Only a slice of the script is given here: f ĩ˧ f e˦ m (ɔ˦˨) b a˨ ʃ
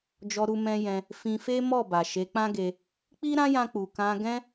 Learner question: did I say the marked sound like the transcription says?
yes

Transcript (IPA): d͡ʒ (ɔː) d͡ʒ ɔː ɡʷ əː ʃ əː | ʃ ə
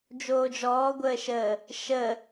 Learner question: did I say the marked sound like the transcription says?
no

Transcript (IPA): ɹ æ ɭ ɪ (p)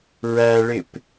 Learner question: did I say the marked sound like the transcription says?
yes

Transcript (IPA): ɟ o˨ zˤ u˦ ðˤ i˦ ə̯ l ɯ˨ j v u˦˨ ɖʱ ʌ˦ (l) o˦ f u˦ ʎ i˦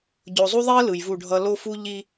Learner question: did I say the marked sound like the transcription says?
yes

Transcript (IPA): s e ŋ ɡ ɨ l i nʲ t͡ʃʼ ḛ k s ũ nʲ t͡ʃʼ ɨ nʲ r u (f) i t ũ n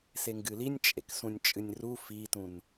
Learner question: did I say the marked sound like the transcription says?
yes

